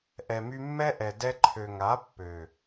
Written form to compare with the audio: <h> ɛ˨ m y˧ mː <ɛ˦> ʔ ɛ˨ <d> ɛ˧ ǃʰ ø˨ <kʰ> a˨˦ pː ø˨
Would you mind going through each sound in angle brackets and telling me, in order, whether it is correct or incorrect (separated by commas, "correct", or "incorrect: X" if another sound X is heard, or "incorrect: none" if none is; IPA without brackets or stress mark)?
incorrect: ʔ, correct, correct, incorrect: ŋ